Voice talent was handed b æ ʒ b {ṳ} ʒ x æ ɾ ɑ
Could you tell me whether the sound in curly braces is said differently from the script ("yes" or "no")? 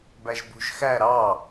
no